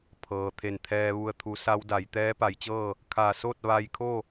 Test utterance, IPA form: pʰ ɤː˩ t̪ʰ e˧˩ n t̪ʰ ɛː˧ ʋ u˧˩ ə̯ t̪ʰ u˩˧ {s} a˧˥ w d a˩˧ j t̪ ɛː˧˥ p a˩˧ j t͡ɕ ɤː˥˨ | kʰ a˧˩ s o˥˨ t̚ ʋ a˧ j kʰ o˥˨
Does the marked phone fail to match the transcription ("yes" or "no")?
no